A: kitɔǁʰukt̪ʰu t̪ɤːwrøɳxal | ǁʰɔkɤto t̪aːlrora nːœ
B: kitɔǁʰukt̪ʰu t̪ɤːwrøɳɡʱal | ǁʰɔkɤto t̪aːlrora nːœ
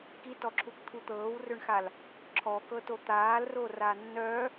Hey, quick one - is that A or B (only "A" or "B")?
A